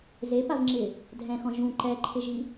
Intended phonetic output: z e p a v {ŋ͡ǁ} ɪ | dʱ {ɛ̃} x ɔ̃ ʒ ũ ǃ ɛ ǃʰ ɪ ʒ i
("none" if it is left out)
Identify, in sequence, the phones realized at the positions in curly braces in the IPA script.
ŋ͡ǁ, ɛ̃

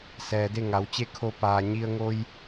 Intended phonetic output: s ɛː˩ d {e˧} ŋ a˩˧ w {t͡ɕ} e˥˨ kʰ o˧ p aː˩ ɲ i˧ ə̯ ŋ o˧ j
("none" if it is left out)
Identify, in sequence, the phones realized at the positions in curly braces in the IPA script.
e˥˨, t͡ɕ

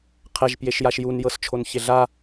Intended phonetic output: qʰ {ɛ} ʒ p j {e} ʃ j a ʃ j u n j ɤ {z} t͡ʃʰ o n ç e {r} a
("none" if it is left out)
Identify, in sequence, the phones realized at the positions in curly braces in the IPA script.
ɛ, e, s, ɮ

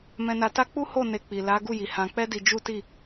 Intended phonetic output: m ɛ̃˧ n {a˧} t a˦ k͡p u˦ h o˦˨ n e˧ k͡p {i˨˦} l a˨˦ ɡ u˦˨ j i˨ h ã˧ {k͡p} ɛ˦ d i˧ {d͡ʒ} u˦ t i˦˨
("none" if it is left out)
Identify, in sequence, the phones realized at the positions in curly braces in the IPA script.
a˧, i˨, k͡p, d͡ʒ

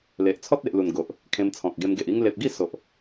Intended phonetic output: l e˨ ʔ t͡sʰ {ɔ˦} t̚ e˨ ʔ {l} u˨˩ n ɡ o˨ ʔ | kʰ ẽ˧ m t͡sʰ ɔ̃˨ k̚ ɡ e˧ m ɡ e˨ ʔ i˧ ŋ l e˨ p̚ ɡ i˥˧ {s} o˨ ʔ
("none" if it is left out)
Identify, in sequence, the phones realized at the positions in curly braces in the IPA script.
ɔ˦, l, s

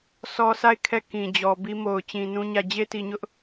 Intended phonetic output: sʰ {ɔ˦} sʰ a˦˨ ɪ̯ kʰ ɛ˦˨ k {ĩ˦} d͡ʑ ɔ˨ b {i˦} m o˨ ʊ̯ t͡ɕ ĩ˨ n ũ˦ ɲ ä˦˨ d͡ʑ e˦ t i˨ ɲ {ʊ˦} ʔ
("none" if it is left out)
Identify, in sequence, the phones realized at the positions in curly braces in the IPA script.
ɔ˦, ĩ˨, i˦, ʊ˦

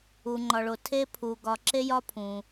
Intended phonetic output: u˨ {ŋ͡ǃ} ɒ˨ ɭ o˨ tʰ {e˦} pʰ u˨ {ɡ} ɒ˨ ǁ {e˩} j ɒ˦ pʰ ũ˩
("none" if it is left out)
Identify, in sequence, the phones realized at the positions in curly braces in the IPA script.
ŋ͡ǃ, e˦, ɡ, e˦

